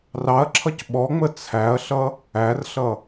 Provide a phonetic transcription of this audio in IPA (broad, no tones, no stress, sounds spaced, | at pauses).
r ɑ ɐ̯ ǁʰ ʌ c ɓ ɔ ŋ͡m ə t͡sʰ æ ɐ̯ ɬ ʌ | æ r ɬ ʌ